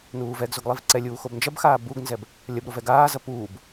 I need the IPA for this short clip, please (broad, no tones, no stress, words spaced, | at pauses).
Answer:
nuːvɛɡzoɡ lˠivǀɛlʲuː xobnd͡ʒɐbxaː buɡnzɛb | lʲɐbɾo vɛɡaːzɐ puːb